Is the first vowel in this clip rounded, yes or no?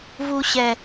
yes